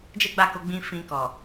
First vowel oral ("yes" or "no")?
yes